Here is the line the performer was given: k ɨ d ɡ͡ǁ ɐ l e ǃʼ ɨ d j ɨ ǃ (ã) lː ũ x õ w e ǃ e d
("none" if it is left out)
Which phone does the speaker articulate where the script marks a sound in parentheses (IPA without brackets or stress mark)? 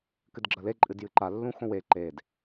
a